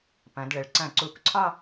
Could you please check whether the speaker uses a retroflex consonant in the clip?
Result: yes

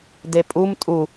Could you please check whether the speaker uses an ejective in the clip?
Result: yes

